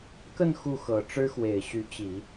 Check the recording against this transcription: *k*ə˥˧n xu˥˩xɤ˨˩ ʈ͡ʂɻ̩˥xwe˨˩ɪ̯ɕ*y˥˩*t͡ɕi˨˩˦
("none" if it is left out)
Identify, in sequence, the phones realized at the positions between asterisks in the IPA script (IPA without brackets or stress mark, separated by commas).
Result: k, y˧˥